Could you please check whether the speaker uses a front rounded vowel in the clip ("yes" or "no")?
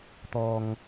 no